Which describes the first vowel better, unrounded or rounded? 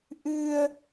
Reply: unrounded